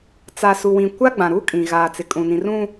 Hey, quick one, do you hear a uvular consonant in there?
no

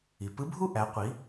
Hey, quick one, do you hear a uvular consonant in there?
yes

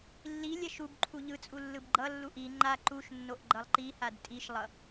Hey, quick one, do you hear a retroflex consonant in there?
no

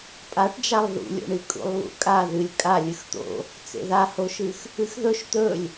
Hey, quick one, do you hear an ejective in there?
yes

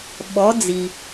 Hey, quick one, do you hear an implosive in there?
yes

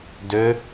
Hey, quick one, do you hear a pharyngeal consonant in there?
no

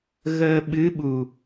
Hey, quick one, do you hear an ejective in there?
no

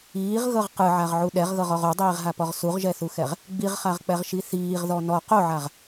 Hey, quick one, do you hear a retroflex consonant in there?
no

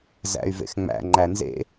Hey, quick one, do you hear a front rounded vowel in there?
yes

